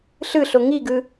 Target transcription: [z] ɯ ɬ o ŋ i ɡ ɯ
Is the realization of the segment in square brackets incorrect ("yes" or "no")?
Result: yes